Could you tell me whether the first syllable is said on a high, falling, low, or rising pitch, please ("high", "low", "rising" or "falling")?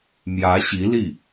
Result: rising